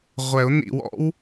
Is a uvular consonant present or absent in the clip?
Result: present